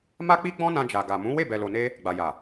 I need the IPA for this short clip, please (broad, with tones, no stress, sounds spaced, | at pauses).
m a˦ k͡p i˦ ɡ͡b ɔ̃˦ n ã˧ d͡ʒ a˨ ɡ a˨ m ũ˨˦ w e˦˨ b ɛ˨ l o˨ n e˧ | ɡ͡b a˨ j a˨